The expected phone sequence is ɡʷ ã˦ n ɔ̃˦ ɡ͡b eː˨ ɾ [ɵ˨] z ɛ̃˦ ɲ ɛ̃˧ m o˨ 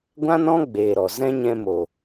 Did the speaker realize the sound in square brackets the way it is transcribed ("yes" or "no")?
no